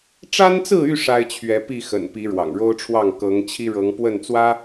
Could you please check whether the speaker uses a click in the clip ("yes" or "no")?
no